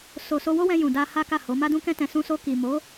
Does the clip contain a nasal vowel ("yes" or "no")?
yes